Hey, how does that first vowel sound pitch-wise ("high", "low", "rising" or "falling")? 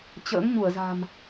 rising